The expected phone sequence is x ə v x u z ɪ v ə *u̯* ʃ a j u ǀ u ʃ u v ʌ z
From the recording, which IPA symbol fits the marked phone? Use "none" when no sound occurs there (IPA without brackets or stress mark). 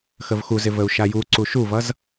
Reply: u̯